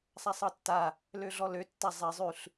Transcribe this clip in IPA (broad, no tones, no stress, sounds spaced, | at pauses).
sˤ a sˤ ɤ tː a | l ø ɮ ɔ l ø tː a zˤ e zˤ ʉ ɬ